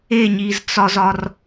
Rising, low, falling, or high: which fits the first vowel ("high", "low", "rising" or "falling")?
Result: falling